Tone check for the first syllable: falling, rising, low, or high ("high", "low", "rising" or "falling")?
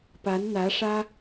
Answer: rising